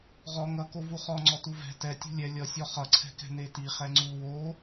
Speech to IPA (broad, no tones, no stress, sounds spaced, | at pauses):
ʁ ɔ ŋ ʌ k o v u χ ɔ ŋ͡ǀ ɔ t u v ɛ̤ t ɛ tʲ ṳ lʲ ɛ lʲ ʌ sʲ ɔ χ ʌ ǀʰ ɛ̤ k ɛ̤ n e t i χ ɛ ŋ͡ǀ u w o